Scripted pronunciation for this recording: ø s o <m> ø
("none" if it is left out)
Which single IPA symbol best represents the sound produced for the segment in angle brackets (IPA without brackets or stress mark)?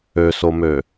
m